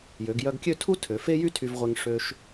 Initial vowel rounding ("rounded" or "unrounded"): rounded